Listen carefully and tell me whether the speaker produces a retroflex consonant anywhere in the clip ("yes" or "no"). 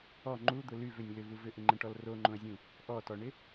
yes